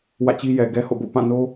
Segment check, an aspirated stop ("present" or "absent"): absent